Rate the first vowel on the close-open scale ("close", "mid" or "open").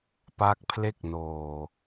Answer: open